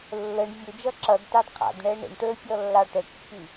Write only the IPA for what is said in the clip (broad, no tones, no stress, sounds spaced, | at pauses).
lː ə ɳ vʲ ʊ d͡ʒ ʌ ǁ ʌ d t ɑ d qʰ ɑ̰ d ɳ ɛ ɳ ə̰ ɳ ʈ ə˞ fʲ ɔ lː ɑ ʈ ə kː i